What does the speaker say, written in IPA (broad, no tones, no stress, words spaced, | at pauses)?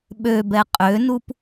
ɓøbɛ qʼønup